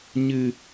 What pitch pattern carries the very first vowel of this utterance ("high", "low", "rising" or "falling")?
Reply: low